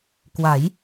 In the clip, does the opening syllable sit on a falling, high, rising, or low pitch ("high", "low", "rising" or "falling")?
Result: rising